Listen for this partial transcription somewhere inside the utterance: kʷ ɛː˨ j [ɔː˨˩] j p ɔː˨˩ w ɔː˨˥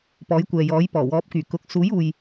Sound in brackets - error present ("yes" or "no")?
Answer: yes